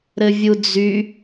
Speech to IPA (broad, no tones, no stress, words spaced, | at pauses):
ɾɘvʲud͡zy